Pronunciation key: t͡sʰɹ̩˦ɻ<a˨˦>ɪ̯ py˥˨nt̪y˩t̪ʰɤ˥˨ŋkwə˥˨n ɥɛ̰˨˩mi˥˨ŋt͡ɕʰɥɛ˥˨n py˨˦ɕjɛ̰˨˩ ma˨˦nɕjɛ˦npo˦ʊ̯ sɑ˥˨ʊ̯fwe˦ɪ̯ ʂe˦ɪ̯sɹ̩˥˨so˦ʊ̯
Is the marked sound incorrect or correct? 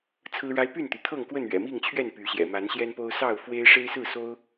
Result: incorrect